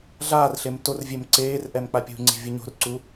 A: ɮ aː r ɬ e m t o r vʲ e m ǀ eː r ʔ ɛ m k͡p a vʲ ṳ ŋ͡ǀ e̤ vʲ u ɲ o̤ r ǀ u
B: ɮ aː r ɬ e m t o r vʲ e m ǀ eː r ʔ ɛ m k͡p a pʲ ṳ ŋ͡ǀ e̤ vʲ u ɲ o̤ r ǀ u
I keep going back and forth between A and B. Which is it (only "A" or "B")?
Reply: B